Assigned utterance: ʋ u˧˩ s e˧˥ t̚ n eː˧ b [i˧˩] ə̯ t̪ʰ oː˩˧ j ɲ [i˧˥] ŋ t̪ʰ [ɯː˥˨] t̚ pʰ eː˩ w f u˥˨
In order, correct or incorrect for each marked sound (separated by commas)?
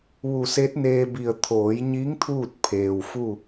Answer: correct, correct, incorrect